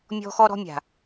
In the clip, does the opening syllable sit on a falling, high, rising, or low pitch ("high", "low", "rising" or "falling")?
high